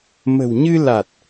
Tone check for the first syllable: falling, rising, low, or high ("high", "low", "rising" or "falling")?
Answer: low